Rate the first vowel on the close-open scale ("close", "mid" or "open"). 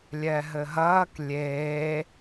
mid